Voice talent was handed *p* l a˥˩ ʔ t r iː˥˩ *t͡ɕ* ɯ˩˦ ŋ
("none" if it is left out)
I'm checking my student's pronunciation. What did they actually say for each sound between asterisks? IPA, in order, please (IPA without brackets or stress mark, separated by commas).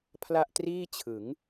pʰ, t͡ɕʰ